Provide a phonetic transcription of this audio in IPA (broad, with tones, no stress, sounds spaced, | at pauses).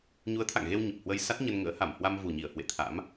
ɲ u˨˦ ə̯ t̪ʰ a̰˧˨ ŋ ɣ e˧ w ɲ ə˨˩ p̚ h w ə˧ j s a˦˥ t̚ ɲ ə˧ n ŋ ə̰ː˧˥ h a˧˩ m h w a˧ m v u˨˩ ɲ i˧˩ ə̯ h w ḛ˧˨ t̪ʰ a̰˧˥ m